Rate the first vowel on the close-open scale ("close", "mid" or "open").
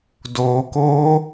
mid